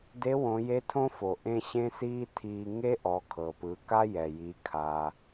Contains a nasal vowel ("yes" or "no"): yes